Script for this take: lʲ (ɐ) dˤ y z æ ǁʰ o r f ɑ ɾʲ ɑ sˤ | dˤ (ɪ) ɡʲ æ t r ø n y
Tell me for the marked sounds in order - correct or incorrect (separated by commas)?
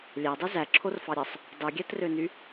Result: incorrect, incorrect